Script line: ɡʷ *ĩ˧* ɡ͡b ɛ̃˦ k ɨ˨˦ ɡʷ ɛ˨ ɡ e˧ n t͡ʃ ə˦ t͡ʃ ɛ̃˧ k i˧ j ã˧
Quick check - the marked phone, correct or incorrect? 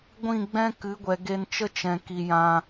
incorrect